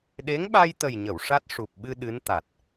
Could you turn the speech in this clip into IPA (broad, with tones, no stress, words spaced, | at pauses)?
ɗe˧˥ŋɓa˧jt̪ə˨˩jɲə˨˩˨w ʂa˦˥t̚ʂu˨˩p̚ɓɨ˧ ɗɨ˧˥n t̪a˨˩t̚